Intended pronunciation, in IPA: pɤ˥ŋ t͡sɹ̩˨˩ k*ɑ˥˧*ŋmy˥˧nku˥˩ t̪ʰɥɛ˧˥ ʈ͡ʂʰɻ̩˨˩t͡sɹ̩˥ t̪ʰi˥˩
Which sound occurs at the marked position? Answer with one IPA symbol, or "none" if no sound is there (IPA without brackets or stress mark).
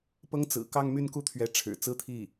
ɑ˥˧